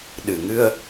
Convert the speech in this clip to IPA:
ɗɨ˨˩ŋɨ˧ə̯

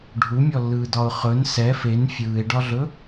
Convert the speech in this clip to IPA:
ɖʱumʲɔlːɯːdɒʊ̯ χɵn sɛ fen fʲɯːɪ̯ɖɒɮɵ

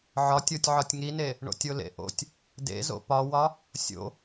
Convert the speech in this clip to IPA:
ʕɒtʲotʲʕɒtʲ ŋine | ɳo̰tʲolḛʔo̰tʲ | dḛzo̰ pɒwɒ | sʲo̰

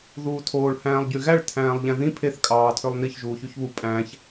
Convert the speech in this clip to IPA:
ðuːtʰoːɭ hæ̃ːlˠɟyɣæɭ tʰæ̃ːlˠʎæ̃ðĩ pʰeθ kʼɑːtʰølˠniç ʒuːçyçβu pʼæ̃ç

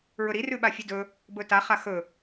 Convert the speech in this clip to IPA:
ɹɵɾi rʉɓafʲʉdɵ | bɵta χaxɵ

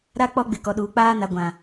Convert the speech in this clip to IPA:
ɾa˦ k͡pɔ˦ɡ͡bɪ˨ kɔ˨ɗuː˨k͡paː˦na˨ ɡʷã˨

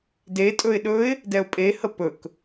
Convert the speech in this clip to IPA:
detʼɵɪ̯ ɗɵɪ̯ | dɛʊ̯pʼehə pɵk

